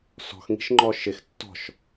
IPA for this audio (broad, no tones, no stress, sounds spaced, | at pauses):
s ɔ̤ x ŋ i̤ ʃ ŋ͡ǃ ɔ ʃ ɪ x tː ɔ̤ ʃ